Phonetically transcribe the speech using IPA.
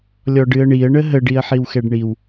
lʲɔɖɨə̯ɳiə̯ ɳəɦə ɖiə̯ħiwxɛɖɳiw

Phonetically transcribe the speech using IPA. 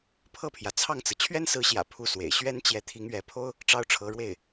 pʰɤ˥˩pʰjä˩t͡sʰɑ˥˩ŋt͡sɹ̩˩ t͡ɕʰɥɛ˥nsɹ̩˧˥ɕjä̰˨˩ pʰu˥˩swḛ˨˩ɪ̯ ɕɥɛ˥nt͡ɕjɛ˧˥ t̪ʰi˧˥ŋɥɛ˧˥pʰo˥ʊ̯ | ʈ͡ʂɑ˥ʊ̯ʈ͡ʂʰɤ˧˥ɻwe˥˩ɪ̯

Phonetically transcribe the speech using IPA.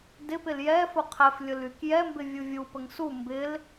dɪpɪl jɛfʊ qʰɛflʲʊlyk jɛmbɪvʲu vʲupəŋ su mbɪl

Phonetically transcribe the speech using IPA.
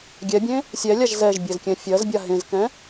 ɡʲɛbʲẽ | sʲɛlʲaʒ zɛʒbʲezkʲɛ̃ fʲɜzbʲa ɦẽzkɛ̃

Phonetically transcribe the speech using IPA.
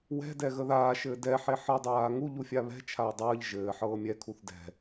wɛ̤dɛ ɣəðaːʃɘː dɛħe ħɤdˤaː ŋuʎu fʲaβɛ̤t͡ʃʰaː dˤəːʎ ʒɘː ħɤːmʲɛkʰuθ dɛ̤

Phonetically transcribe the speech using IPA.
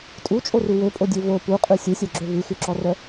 tʼut͡ʃʼoru wøpʼodʲø vo puqʼʉ sʲusʲœɡ͡ǁø vʉxʉǁɔrœ

